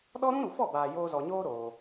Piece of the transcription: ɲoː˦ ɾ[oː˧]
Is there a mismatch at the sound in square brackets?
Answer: no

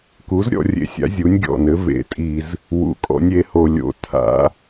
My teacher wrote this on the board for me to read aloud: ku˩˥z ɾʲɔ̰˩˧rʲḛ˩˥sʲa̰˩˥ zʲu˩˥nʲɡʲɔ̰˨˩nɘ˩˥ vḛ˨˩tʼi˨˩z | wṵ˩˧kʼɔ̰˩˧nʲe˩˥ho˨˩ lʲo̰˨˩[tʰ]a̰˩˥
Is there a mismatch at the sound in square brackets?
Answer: no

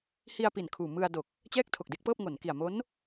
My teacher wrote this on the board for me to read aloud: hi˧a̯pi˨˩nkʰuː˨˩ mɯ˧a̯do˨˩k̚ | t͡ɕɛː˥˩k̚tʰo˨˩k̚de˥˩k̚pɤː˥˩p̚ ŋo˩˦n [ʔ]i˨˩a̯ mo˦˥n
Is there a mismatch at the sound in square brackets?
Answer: yes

